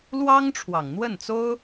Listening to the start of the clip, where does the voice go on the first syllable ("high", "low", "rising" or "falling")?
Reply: high